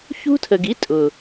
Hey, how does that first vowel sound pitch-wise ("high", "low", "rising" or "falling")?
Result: high